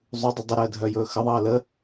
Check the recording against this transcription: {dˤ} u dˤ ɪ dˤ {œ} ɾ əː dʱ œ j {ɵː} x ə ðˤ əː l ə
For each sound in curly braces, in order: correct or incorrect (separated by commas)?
incorrect, incorrect, correct